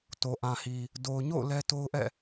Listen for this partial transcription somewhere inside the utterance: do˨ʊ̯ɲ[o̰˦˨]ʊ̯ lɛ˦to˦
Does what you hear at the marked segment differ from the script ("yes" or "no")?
no